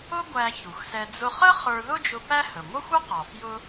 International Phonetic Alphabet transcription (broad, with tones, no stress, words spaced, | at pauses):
ʊ˥ɡʷæ˧ çu˩xsɛ˧ d͡zʊ˧χə˥ χə˞˧ðʊ˥d͡ʒʊ˧ pæ˥ hə˩ŋʷʌ˥xʷʌ˥qɔ˩ fjʊ˧